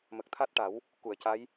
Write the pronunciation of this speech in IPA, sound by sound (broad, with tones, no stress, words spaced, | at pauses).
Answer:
mə˨˩k̚t̪ʰa˦˥t̚ʈa˨˩˦w | ku˨˩˨ə̯ca˧˥j